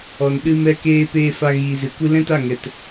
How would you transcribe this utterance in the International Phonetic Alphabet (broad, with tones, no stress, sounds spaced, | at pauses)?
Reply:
ɔ˨ n ɗ ɨ˧ m ɛ˧ k eː˧ p eː˧ f a˧ ɣ iː˨ z ɨ˨ kʷ ɨ˦ l ɛ̃˦ t a˦˨ ŋ ɛ˨ t